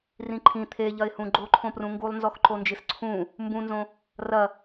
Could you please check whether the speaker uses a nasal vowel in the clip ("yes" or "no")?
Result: yes